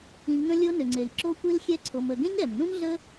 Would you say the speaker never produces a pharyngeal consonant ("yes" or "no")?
yes